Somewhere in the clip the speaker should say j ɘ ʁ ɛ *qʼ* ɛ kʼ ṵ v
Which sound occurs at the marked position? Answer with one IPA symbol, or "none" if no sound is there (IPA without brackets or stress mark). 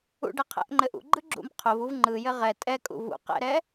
tʼ